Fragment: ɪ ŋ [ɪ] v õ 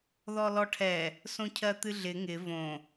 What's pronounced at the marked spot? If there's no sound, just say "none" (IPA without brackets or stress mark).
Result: ɪ